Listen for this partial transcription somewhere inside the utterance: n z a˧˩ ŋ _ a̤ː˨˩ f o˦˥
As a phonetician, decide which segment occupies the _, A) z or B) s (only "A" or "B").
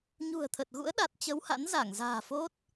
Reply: A